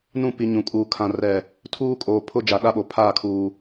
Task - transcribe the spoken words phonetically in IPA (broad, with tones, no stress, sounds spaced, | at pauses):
n ũ˦˨ p i˨ ɲ ũ˨ kʼ uː˨ kʰ ã˨ r ɛ˨ | tʰ uː˦ kʼ oː˨ pʰ ʊ˦ d͡ʒ a˨ ɗ a˦ ɓ o˨ pʰ aː˦˨ kʰ uː˨